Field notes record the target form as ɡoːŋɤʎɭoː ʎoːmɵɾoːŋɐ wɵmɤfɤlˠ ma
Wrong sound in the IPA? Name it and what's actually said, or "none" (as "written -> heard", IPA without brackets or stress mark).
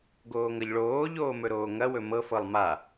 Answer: none